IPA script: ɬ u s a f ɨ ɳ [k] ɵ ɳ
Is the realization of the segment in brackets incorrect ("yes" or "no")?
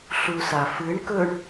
no